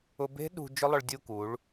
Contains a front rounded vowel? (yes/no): yes